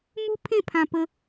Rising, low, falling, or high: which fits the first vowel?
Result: high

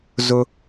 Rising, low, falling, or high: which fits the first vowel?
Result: high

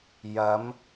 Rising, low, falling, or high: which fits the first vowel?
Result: rising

